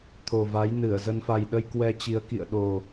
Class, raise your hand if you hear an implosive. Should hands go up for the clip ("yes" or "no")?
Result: yes